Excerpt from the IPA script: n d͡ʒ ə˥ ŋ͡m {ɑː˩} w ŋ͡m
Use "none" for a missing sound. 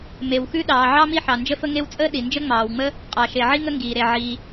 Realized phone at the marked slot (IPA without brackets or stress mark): ɑː˩